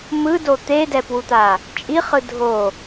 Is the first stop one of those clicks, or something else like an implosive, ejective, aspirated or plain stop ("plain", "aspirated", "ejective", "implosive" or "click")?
plain